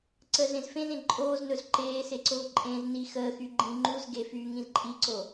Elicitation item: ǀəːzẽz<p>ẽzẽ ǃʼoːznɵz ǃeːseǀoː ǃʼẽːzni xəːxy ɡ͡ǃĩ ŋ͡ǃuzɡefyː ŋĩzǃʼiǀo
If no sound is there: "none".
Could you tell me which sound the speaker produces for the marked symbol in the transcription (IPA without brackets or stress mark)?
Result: f